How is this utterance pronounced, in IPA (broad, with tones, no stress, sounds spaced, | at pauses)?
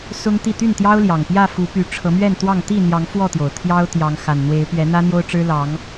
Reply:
s ʊ˦ ŋ t̪ i˥˨ t̪ y˥˨ n t̪ j ɑ˦ ʊ̯ l j ɑ˨˩ ŋ p j ä˥˨ f u˨˦ p y˨˦ ʈ͡ʂʰ ɤ˨˦ m ɥ ɛ˥˨ n t̪ w ɑ˥˨ ŋ t̪ i˥˨ n̪ j ɑ˨˦ ŋ f w ɔ˥˨ t̪ j o˩ ʊ̯ t̪ʰ j ɑ˦ ʊ̯ t̪ j ɑ˨˦ ŋ x a˨˩ n n̪ w e˨˦ ɪ̯ p ɥ ɛ˨˦ n̪ ä˦ n̪ j o˦ ʊ̯ ʈ͡ʂ ɻ̩˦ l ɑ˨˦ ŋ